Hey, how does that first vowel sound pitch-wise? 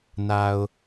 low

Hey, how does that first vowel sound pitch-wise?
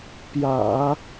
low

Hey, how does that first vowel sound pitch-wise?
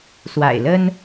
low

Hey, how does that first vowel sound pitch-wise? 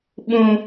low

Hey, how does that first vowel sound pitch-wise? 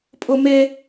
high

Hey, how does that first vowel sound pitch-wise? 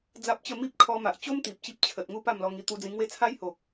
high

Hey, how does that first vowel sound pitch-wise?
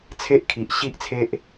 high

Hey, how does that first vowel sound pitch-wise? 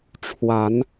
rising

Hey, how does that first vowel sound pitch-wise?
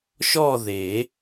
falling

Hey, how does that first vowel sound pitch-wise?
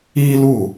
high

